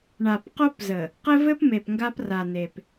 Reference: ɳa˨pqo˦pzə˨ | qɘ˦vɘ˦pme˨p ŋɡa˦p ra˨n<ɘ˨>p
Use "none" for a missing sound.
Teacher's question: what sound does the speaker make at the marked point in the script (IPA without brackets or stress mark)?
e˨